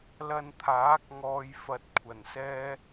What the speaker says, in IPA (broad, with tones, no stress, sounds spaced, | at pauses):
l ɐ˧ n t̪ʰ aː˨˥ k̚ ŋ ɔː˨ j f ɐ˧ t̚ kʷʰ ɐ˨˩ n s ɛː˥